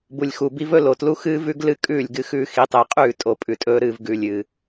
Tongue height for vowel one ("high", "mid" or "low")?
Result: high